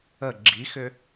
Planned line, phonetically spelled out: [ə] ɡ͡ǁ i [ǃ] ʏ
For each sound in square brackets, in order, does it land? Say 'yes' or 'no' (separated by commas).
yes, no